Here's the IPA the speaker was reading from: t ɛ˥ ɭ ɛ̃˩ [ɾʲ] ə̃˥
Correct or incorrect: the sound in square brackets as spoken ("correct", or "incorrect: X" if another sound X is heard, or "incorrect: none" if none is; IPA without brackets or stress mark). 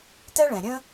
correct